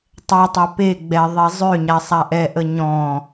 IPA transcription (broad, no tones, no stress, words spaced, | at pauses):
tˤɛtˤa pe ɡ͡bɛðˤe zˤøɲa sˤaʔɛʔə ɲɔ̃